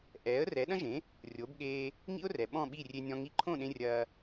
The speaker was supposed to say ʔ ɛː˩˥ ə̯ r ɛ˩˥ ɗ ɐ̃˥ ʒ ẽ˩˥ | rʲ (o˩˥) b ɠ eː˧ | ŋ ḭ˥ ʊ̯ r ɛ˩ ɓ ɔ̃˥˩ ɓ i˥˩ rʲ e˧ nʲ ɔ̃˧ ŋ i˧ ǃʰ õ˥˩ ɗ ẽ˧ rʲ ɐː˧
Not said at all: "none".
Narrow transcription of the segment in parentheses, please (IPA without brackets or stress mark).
o˩˥